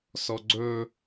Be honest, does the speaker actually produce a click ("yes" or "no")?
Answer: yes